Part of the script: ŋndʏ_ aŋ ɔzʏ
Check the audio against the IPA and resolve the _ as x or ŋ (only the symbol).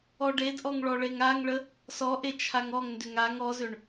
ŋ